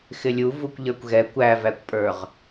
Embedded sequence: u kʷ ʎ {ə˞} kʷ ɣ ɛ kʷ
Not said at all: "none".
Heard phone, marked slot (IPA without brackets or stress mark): ə˞